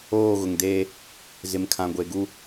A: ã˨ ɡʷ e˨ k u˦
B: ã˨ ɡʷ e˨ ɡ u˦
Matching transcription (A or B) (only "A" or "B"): B